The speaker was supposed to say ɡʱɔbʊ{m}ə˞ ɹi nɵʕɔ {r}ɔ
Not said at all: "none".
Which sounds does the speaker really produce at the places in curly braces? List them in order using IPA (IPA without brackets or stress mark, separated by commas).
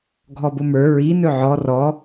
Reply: m, r